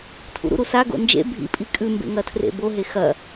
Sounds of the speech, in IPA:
tʰ ṵ ɾ ṵ ɾ u s a ɡ o̰ n d͡ʒ ḛ bʱ ḭ pʼ i kʼ ʉ m b ḛ ŋ ɐ tʰ r ḛ b o ɦ e x ɐ

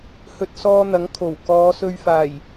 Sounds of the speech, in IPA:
h ɵ˧ t̚ s ɔː˧ n̪ ɐ˨˥ ŋ kʰ o˨˩ w k ɔː˨˧ s ɵ˧ ɥ f aː˨˩ j

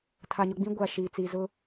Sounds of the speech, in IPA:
tʰ a˨ ɲ ʊ˨ ɡ͡b ĩ˦ ɡʷ a˨ ʃ iː˨ t͡s iː˨ z ʊ˦

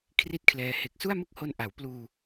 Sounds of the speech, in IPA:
kʰ r i˥˩ t̚ kʰ l ɛː˧ h e˨˩ k̚ s u˥˩ a̯ m ɯ˥˩ k̚ h o˧ n ʔ a˩˦ w p l uː˧

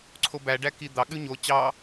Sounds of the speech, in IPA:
ǀʰ o b æ ɖ æ k i d̪ ɑ ɠ ʉ ɲ o t͡ɕ ɑ

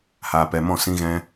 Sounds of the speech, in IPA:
h aː˧ p ɛ˧ m ɔ̃˦˨ s ĩ˦ ɣ ɛ̃˦

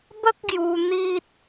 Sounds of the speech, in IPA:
b ə˦ k̚ ɡ j u˧ n̪ i˦ t̚

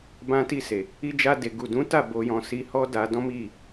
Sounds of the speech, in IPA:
b ã˧ t i˧ s e˨ | i˧ d͡ʒ a˧ d e˨ ɡ u˨ d ũ˨˦ t a˦˨ b o˧ j ɔ̃˧ s i˧ h ɔ˦ d a˧ d ɔ̃˦ m i˦˨

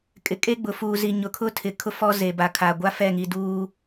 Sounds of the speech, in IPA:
kʼ ɪ˨ kʼ e˦ ɡ͡b ʊ˨ f uː˨ z i˨ ɲ ʊ˨ kʰ ʊ˦ tʰ ɪ˨ kʰ ʊ˦ f ɔ˦ z e˨ b a˨ kʰ a˨ ɡʷ a˦ f ɛ˦˨ ŋ i˨ d uː˦

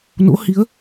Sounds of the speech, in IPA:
n o̰˧˥ h i˨˦ ə̯

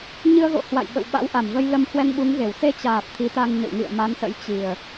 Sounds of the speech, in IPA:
ɲ ɨ˧ ə̯ ɣ o̰˧˨ h w a̰˧˨ j ɓ ə̰˧˨ w ɓ a̰˧˥ w ʔ a˧˩ m v ə˧ j l ə˧ m h w ɛ˧ ŋ ɓ u˨˦ ŋ ɣ e˧˩ w s e˧ t͡ɕ aː˨˩ p̚ t̪ʰ i˨˦ t̪ a˧ ŋ ɲ ə̰˧˨ w ŋ ḭ˧˨ ə̯ m a˨˦ n s ə̰˧˥ j t͡ɕ i˨˩ ə̯

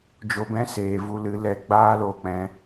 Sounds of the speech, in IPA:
d͡ʒ o˧ b ɛ̃˦ s eː˨ v u˧ l ɨ˨˦ l ɛ˧ ɡ͡b aː˦ l o˧ k͡p ɛ̃˧

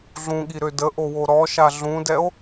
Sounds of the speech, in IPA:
ɮ ũ ɠ i ɾ ø d ə ʔ o w o ɾ ɔ ʃ a ɮ ũ d ɛ o̯

